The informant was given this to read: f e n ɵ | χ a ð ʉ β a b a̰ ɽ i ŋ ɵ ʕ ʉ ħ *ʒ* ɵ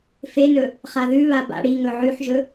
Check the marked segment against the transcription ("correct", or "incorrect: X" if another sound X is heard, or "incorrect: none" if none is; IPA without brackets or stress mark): correct